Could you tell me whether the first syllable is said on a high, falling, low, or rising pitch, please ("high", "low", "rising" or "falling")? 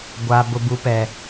low